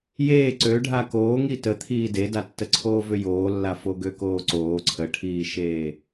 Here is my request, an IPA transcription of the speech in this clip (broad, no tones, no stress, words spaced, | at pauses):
jeː ǀøɖʱa koːŋi tət̪ʰiː dedatːəǀʰoː vʏjoːlːa foɡøkoːǀoː ǀʰəʈʰiːʃeː